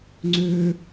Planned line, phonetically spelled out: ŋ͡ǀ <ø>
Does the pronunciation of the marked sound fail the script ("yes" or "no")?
yes